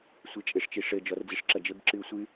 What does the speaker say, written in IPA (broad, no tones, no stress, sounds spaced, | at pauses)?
sʷ e t͡ʃʼ e ʂ t͡ʃ i ʂ ɘ d͡ʒ ɔ r d͡z i ʂ ǁ ɐ d͡ʒ ɘ b ǁ ɨ u̯ sʷ ɨ